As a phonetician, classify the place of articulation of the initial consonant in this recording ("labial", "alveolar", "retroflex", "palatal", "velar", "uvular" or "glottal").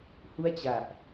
glottal